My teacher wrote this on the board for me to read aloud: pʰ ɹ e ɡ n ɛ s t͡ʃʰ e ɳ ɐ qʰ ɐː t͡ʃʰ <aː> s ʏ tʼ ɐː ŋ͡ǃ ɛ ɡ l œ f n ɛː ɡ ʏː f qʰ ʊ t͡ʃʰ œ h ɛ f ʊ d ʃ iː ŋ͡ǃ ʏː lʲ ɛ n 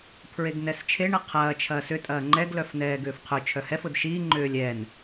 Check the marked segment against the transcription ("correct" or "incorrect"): incorrect